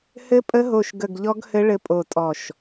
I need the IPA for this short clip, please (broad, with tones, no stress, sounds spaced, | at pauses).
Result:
h ɘ˦˥ pʼ ə˦˥ ɦ o˦˨ ʃ ɡ ə˦˨ ɡ ʎ ɔ˦˥ ɡ h ɘ˦˥ ɭ ɘ˦˥ pʼ o˦˨ tʼ ɔ˦˨ ʃ